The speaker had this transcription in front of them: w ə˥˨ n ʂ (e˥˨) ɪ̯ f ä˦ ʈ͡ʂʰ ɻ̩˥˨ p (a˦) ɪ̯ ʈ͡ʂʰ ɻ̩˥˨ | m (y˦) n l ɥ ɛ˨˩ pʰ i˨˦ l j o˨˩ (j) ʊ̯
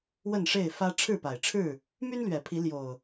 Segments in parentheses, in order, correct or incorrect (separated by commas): correct, incorrect, correct, incorrect